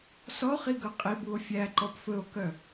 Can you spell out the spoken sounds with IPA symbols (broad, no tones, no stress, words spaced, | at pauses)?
sɔχiɡɵ qʼibuo̯ fʲæǃɔp fɵo̯kœ